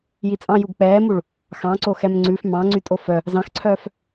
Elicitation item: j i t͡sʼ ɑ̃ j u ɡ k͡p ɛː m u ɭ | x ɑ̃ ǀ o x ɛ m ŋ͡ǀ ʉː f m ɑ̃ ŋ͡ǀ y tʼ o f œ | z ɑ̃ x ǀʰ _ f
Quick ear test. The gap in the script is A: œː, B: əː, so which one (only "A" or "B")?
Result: A